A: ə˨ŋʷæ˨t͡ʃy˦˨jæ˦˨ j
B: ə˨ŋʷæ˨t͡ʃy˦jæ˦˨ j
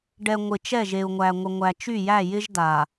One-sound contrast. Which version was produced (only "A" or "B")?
A